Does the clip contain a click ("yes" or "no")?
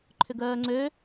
yes